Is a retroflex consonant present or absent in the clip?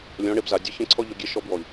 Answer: present